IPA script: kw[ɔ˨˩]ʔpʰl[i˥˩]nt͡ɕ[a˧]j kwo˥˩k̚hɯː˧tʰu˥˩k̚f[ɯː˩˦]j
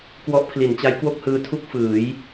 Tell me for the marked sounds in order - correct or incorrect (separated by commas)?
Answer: incorrect, incorrect, incorrect, correct